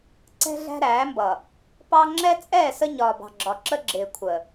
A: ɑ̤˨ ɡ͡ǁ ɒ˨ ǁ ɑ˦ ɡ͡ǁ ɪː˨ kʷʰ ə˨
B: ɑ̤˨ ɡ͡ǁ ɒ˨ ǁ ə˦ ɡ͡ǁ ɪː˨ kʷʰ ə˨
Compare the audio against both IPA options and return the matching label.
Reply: B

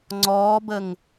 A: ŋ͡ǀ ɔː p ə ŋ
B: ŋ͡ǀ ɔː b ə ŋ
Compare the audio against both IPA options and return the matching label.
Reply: B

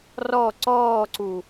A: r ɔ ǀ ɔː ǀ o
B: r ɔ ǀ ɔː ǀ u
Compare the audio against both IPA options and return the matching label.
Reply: B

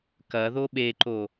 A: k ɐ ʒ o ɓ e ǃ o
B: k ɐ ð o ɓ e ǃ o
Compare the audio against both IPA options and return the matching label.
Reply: B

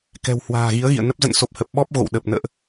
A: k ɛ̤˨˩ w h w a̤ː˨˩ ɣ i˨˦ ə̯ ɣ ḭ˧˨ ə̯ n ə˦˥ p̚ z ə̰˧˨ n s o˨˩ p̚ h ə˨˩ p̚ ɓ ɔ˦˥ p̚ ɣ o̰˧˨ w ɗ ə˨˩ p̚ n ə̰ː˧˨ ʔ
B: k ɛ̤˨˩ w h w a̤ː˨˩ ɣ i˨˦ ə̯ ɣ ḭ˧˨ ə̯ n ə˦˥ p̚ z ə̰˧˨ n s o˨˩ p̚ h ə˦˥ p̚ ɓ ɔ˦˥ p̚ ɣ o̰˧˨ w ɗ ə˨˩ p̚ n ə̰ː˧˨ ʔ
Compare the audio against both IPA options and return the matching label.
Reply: A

